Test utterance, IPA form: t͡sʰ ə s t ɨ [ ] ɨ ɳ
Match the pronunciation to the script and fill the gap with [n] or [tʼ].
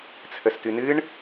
n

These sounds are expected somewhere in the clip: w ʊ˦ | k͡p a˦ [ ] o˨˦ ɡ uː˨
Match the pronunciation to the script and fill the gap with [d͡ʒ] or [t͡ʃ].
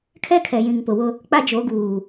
d͡ʒ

